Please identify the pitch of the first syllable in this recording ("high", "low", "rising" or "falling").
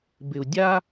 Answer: low